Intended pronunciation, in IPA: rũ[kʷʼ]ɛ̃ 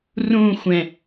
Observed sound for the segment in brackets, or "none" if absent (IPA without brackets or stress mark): xʷ